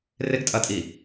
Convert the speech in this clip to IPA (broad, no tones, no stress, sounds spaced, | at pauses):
r ɪ ɡ tʼ ɐ tʼ i